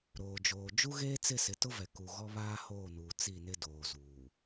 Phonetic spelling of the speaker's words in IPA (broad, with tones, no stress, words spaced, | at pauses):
ɾoː˨d͡ʒoː˨ d͡ʒu˦ɣeː˦t͡sɪ˦˨ sɪ˨tʊ˦vɛ˨ ku˨ ɣɔ˦βaː˦hoː˦˨nuː˨ t͡si˦˨nɪ˦doː˨ zuː˨